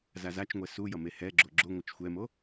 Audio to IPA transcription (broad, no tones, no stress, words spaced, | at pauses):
zazat͡ʃŋʷɛ su jʌmehɛɡ͡ǁo ɡ͡ǁoŋʷʌt͡ʃ xʷɛmo